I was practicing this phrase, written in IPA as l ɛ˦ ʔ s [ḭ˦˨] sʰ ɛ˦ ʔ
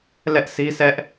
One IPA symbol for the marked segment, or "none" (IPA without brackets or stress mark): i˦